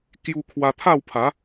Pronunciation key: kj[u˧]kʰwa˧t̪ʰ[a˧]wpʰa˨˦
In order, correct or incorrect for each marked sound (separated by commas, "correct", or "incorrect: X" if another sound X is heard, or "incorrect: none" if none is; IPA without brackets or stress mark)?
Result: correct, incorrect: a˥˧